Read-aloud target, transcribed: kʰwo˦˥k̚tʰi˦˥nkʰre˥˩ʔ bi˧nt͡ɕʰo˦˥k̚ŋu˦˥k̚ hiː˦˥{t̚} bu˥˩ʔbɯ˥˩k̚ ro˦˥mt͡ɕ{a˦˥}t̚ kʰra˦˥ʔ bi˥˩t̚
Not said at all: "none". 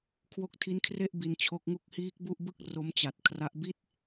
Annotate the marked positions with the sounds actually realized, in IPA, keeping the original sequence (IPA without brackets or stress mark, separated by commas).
k̚, a˨˩